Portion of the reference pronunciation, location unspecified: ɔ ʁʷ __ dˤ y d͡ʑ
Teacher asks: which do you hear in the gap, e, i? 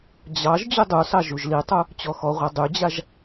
e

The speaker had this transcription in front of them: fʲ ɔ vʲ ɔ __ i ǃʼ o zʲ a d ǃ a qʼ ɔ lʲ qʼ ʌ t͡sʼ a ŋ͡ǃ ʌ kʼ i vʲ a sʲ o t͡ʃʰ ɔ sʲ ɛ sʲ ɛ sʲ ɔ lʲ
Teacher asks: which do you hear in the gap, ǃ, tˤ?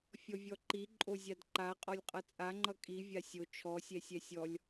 ǃ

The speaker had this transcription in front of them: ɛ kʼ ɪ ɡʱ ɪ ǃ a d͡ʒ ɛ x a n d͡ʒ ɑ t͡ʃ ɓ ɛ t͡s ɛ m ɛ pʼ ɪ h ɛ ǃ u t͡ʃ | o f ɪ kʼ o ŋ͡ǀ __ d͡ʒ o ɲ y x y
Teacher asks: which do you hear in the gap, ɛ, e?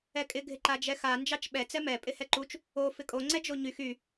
ɛ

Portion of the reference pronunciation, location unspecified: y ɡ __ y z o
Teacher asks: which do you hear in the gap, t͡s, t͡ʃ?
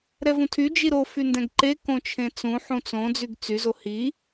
t͡s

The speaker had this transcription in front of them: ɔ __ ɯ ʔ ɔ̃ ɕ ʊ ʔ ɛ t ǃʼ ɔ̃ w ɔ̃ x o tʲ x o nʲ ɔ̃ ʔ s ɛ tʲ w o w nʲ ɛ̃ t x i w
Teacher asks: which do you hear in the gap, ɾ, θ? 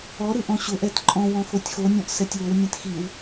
ɾ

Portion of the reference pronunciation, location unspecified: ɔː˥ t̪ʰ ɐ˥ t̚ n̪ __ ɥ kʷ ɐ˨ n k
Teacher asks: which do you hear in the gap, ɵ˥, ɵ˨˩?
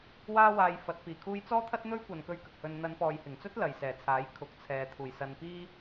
ɵ˥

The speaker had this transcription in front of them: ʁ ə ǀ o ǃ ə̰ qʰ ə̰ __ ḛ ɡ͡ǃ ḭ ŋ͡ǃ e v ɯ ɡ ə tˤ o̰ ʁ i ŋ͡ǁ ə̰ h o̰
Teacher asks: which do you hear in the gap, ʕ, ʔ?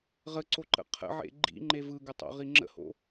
ʕ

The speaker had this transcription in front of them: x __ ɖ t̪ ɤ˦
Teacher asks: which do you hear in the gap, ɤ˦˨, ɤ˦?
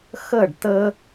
ɤ˦˨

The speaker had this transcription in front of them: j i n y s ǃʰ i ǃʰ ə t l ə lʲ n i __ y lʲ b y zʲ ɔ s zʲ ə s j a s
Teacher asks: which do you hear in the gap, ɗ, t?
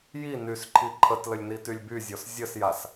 t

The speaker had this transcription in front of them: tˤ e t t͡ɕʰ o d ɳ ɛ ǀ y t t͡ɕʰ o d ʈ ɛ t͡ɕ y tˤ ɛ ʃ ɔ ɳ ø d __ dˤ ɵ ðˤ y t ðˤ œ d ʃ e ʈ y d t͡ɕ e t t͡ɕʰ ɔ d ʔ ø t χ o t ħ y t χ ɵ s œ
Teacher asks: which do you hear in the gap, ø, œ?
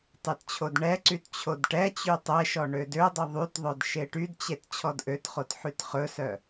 ø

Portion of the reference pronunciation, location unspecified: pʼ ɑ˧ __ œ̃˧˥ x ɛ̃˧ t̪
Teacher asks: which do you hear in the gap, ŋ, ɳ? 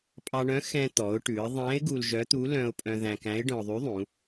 ɳ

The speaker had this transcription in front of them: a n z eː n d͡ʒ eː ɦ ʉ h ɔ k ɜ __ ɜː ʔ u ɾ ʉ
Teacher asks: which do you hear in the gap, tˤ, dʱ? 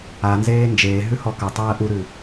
tˤ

